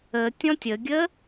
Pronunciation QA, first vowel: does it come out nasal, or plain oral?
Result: oral